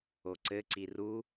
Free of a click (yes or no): no